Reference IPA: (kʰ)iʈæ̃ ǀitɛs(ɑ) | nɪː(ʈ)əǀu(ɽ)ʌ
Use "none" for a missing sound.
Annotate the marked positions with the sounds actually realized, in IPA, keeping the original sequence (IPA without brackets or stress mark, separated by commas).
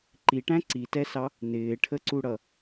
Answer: ǃ, ɑ, ʈʰ, ɽ